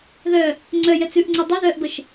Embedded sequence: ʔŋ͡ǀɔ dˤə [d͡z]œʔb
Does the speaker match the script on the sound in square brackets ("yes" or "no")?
no